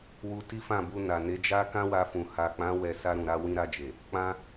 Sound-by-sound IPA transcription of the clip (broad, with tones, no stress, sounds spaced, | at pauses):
w u˧ t i˦ f ã˦˨ b u˧ n a˨ n e˨˦ d͡ʒ a˦ k ã˦ w a˧ f ũ˨ h a˨ k͡p ã˨˦ w ɛ˦˨ s a˧ ɾ ũ˨ ɾ a˧ w ĩ˧ ɾ a˧ d͡ʒ e˨ | k͡p ã˦